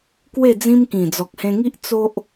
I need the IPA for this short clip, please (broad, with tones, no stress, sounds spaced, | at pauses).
k w e˥˧ d͡z ĩ˦ m k ĩ˨˩ d͡z ɔ˨ k̚ h ẽ˧ ŋ i˦ ʔ t͡s o˦ ʔ